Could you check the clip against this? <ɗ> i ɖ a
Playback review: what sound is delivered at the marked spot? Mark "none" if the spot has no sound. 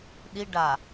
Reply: ɗ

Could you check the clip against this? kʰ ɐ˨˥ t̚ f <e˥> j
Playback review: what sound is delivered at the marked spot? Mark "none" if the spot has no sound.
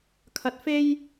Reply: e˥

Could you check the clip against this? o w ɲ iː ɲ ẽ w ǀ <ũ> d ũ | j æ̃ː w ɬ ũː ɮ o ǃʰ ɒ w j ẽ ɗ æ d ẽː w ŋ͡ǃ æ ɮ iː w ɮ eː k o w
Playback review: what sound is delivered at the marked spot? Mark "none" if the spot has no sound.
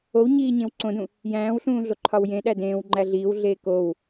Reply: õ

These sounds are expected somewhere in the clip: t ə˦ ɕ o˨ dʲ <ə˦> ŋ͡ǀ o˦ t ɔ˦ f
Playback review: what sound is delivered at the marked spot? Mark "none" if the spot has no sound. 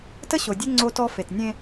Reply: ə˦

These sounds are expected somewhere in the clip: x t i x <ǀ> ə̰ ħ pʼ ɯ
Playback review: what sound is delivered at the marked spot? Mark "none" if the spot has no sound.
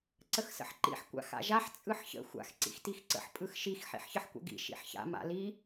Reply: ǀ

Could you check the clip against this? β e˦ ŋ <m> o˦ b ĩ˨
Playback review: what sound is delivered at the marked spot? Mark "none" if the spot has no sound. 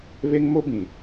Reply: m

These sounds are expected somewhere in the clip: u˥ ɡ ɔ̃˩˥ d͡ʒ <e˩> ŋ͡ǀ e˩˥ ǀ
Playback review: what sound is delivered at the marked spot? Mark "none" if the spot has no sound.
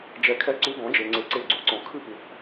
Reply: e˩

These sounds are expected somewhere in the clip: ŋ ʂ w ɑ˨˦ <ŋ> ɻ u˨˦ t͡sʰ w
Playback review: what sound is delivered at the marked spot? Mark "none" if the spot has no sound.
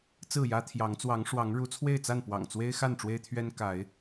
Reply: ŋ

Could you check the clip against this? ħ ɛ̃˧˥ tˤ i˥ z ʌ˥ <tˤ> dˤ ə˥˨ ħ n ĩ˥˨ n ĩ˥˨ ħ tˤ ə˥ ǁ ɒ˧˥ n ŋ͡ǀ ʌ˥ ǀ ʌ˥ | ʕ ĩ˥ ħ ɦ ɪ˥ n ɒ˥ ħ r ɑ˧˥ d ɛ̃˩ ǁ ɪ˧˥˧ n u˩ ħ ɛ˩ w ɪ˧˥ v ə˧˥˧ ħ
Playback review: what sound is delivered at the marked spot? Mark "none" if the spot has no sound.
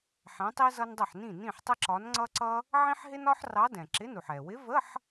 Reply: n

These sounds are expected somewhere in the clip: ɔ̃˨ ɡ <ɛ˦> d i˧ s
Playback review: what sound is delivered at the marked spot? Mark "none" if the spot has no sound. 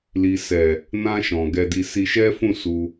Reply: ɛ˧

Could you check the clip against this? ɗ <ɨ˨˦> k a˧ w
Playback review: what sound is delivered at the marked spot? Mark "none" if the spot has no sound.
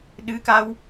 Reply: ɨ˨˦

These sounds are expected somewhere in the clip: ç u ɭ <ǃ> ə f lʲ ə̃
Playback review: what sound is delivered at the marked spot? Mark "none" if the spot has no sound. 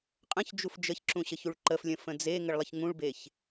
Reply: ǃ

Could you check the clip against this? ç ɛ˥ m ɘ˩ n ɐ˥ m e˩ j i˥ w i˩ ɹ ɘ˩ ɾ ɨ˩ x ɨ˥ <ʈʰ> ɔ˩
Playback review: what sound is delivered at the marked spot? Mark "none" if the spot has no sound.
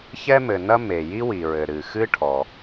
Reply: ʈʰ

